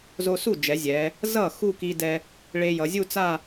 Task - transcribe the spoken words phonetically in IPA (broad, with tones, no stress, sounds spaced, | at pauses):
z o˧ s u˥˩ d͡ʒ ɛ˩˧ zʲ ɛ˩˧ | z ʌ˥˩ x u˥˧ k i˧ d ɛ˧ | ɭ e˧ j ʌ˩˧ zʲ u˥˧ t͡s a˥˧